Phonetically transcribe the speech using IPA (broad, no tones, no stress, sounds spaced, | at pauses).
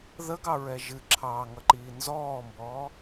ð ə ɡ ɑ ɹ ɛ ʒ ɨ ǁʰ ɑː ŋ ʌ ǃ iː n z ɔː m b ɔː